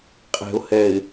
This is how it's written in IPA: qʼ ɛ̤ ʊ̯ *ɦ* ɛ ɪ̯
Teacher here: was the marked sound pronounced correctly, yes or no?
no